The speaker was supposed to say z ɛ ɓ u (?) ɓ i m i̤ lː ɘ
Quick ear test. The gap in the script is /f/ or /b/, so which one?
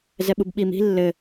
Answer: b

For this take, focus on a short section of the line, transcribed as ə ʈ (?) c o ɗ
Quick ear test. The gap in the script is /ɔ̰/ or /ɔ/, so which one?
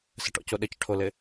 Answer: ɔ̰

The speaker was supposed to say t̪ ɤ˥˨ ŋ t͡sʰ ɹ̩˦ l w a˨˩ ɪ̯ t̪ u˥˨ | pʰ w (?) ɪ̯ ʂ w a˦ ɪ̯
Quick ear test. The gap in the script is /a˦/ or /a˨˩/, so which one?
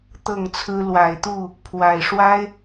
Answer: a˨˩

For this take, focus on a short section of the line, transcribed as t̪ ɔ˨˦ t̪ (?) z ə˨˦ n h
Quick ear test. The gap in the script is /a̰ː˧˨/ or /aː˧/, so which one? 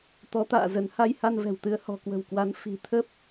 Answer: a̰ː˧˨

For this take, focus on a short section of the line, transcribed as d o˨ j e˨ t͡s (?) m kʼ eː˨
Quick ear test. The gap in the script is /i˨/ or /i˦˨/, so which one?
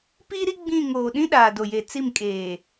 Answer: i˦˨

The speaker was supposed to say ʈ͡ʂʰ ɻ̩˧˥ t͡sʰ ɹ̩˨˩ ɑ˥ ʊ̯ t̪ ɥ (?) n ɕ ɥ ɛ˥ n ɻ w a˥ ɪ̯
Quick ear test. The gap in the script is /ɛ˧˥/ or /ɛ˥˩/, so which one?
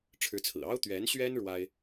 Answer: ɛ˧˥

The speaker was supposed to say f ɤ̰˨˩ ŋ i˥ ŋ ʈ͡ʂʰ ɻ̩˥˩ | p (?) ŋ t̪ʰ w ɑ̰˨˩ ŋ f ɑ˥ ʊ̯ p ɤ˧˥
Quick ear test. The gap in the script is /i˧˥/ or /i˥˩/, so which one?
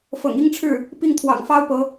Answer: i˥˩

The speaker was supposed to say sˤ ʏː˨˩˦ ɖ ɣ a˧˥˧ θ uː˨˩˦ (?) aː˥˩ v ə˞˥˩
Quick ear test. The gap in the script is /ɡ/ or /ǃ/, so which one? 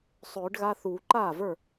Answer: ǃ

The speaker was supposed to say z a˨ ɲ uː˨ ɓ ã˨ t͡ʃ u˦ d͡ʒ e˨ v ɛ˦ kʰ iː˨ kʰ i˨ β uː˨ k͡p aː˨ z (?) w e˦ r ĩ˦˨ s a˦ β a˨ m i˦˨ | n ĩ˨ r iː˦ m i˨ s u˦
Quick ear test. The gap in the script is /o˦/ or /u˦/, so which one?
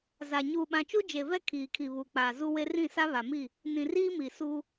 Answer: u˦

